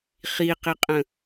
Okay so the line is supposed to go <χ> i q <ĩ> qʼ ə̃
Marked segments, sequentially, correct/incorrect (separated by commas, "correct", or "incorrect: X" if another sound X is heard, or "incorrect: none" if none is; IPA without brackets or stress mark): correct, incorrect: i